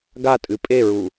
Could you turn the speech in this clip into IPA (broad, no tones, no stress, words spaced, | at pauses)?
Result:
ɡatʼɨ pʼeɹu